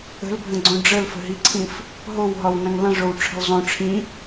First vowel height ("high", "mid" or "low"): mid